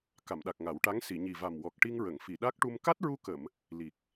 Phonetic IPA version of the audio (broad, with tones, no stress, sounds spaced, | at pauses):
k a˨˩˨ m ɗ a˨˩ k̚ ŋ a˨˩˦ w ʈ a˧˥ ŋ s i˨˩˨ ɲ i˨˩ v a˨˩ m w ɔ˨˩ k̚ ʈ i˧ ŋ ɹ ə˨˩˨ ŋ f i˨˩˨ ɗ a˦˥ k̚ ʈ u˧ m k a˦˥ t̚ ɹ u˧ k ə˨˩˨ m | l i˨˩ k̚